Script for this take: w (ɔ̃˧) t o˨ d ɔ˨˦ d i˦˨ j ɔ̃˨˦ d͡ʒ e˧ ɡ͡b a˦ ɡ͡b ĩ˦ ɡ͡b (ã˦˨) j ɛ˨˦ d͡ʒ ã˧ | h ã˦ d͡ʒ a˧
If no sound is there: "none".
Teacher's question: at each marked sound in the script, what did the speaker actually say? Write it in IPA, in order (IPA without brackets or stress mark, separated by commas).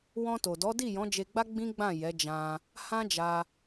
ɔ̃˧, ã˦˨